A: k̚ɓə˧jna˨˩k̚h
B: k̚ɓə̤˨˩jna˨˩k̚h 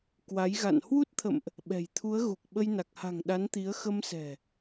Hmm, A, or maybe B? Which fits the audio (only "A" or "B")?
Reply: A